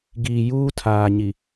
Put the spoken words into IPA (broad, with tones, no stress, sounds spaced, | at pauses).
ɡ iː˨ j uː˦ tʰ aː˨ ɲ i˨